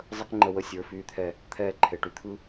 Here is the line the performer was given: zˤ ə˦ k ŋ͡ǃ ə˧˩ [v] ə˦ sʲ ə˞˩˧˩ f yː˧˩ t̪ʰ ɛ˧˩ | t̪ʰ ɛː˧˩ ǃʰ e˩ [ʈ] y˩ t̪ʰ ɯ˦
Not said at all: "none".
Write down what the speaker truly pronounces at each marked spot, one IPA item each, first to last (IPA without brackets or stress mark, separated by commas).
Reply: w, ʈ